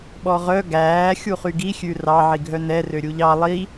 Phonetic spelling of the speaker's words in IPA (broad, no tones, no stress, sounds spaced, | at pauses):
ɓ ɔ ʁ œ ɡ æː xʲ u χ y ɡ i xʲ ʉ r ɑ ʕ i ɡʱ œ n ɛ r ø ɾʲ u ʎ ɑ lˠ i